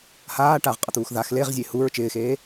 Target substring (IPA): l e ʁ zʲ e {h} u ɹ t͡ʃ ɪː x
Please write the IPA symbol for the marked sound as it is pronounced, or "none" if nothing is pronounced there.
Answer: h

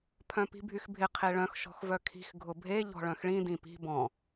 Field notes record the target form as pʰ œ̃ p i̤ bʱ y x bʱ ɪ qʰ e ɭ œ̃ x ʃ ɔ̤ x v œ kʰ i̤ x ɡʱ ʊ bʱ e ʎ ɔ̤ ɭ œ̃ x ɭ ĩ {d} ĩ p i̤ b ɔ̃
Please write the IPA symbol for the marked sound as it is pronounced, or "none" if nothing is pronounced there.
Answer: d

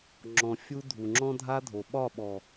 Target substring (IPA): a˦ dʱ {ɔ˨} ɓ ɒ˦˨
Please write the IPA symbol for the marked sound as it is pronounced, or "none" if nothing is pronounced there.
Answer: o˨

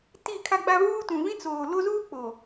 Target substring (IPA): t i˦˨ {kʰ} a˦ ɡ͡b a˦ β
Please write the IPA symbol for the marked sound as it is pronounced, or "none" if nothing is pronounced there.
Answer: kʰ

